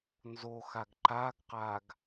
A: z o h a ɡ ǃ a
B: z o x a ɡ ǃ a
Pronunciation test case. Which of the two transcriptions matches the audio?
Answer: B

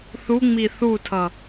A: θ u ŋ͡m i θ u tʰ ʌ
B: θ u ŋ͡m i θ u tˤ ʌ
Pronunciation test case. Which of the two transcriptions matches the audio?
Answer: A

